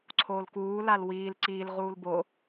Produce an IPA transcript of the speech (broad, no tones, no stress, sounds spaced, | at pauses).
ǀʰ oː l k uː l a l w iː l ǀ iː l ʁ uː l b o